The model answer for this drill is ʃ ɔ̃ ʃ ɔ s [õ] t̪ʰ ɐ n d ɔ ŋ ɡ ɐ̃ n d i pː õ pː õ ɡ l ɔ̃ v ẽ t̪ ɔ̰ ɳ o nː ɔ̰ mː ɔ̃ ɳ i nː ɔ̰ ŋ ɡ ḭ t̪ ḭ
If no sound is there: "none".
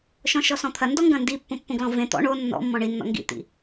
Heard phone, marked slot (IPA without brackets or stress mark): ɔ̃